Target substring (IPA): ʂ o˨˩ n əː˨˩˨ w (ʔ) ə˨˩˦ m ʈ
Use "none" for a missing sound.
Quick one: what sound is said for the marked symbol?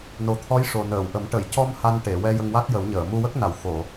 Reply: ʔ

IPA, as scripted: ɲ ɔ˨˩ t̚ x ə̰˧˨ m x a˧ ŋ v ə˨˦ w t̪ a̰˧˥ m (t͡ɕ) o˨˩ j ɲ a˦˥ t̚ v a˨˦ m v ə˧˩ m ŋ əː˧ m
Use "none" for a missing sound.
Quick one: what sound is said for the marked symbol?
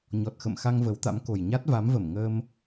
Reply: k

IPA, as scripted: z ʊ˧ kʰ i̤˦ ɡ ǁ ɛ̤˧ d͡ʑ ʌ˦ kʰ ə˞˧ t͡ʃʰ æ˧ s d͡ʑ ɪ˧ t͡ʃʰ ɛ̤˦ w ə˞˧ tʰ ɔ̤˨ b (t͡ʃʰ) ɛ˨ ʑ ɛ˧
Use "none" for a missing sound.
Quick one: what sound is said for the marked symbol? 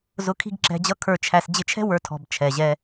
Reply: t͡ʃʰ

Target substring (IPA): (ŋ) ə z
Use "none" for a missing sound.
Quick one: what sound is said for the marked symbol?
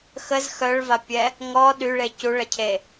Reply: x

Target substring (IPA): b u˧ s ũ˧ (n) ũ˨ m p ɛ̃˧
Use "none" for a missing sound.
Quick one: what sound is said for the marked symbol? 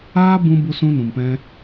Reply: n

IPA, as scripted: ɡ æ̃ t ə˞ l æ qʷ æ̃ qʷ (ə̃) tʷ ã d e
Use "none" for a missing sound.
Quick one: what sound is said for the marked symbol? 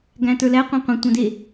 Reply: ə̃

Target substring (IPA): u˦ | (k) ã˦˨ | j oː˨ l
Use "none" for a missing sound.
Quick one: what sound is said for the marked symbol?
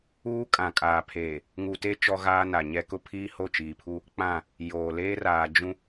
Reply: k͡p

